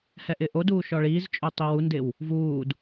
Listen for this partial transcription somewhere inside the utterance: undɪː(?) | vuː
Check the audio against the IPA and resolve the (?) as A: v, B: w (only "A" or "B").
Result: B